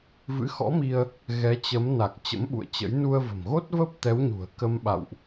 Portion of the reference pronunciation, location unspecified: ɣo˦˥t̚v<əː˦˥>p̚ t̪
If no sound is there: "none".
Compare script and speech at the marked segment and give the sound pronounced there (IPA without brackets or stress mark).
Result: əː˦˥